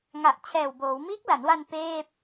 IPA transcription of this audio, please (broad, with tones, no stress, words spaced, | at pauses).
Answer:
ŋa˨˩ʔt͡ɕʰɛː˨˩wboː˩˦w miː˦˥k̚la˩˦nwa˧n peː˥˩p̚